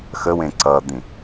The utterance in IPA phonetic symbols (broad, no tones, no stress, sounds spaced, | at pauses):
x ə w ẽ ǀ ʌ d̪ ĩ